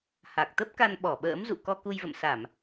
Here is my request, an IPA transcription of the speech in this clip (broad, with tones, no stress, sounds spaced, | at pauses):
h a˨˩ k̚ t̪ ə˦˥ p̚ k a˧ n ɓ ɔ˧˩ ɓ ə̰ː˧˥ m z ṵ˧˨ k ɔ˧ k u˧ j v ə̰˧˨ m s a˧˩˨ m